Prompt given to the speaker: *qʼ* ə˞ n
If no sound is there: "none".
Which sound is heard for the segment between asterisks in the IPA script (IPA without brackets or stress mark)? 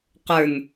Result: q